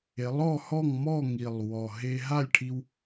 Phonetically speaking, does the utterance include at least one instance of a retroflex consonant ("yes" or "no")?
yes